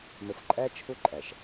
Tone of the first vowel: low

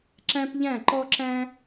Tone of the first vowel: high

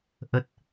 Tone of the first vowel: low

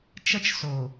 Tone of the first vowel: high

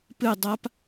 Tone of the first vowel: falling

